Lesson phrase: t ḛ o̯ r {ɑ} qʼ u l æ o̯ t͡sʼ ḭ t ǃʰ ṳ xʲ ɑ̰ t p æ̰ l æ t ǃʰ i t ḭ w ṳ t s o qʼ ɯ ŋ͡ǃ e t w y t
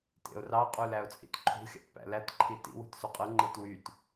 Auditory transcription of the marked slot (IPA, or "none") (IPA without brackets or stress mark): ɑ